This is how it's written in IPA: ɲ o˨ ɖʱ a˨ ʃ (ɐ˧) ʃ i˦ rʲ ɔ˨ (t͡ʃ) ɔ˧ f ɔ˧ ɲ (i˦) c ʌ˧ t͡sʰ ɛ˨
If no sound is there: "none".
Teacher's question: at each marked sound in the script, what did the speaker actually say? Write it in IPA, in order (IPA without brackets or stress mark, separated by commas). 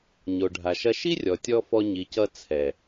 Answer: ɐ˧, tʲ, i˨